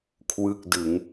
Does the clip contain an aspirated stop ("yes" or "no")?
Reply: yes